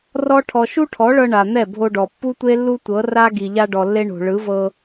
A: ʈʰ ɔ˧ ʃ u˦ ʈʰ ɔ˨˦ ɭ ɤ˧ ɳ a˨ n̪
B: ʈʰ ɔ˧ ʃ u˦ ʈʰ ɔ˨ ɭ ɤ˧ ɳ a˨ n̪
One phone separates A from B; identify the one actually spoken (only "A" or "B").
A